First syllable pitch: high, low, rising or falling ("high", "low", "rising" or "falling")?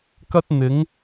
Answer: high